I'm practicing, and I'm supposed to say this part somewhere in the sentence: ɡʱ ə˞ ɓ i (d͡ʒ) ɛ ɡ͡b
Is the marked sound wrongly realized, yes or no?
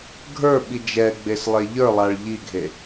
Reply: no